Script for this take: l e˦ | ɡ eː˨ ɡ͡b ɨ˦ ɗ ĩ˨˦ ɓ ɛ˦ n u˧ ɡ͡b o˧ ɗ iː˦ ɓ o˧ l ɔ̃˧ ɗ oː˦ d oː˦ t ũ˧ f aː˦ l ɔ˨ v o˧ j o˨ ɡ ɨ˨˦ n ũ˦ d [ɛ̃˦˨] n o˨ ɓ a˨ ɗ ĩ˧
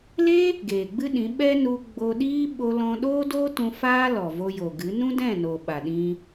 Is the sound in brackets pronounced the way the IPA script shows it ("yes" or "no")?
yes